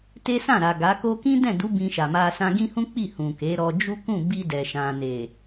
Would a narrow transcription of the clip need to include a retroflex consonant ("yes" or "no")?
no